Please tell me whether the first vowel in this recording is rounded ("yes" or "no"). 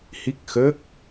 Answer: no